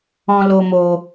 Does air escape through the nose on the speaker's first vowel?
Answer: yes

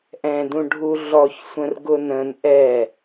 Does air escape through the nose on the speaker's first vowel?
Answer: yes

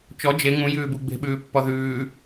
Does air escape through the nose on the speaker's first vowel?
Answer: no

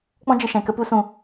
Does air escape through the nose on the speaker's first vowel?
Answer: yes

